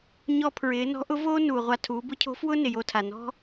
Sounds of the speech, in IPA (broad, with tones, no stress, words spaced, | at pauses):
ɲɔ˧pʰɹɪː˩˧ nɔ̤˧˥ʔʊ˧˥voː˥ nuː˩ʁʷa˧ tʰuː˩˧bʊ˧˥cʰo̤˧˥ fwʊ˥ nɪ˩jo˧ tʰa˩nɔ̤˥